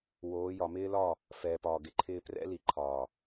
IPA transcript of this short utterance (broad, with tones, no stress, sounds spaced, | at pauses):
w oː˨˦ j ɒ˨ m ɪː˦ l ɒ˦˨ | f ɛː˨ p ɒː˨ ɡ ɪ˨ ǃʰ ɪː˦ p r ɛ̰˦ l i˨ ǃʰ ɒː˨